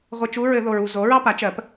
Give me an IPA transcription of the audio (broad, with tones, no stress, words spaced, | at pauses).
ʁʷɘ˧˥˧t͡ʃu˧˥˧ɹ ɘ˨˩˦ðo˨ɹu˨ zo˩˥ɹɑ˥ pa˩˥t͡ʃɜ˨˩˦p